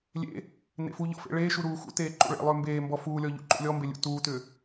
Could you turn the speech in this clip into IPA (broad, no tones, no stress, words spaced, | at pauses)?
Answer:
lʲḛ | nḛfuʎɔ̰ fḛɭeːʃu ɾuːxṵteː ǃṵɭḛlˠʏː mbeːmbɔ fuːlʲɔ ʎṵǃṵlʲɔmbe lʲṵtuːtʏː